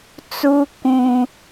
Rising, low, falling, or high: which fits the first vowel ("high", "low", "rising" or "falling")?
high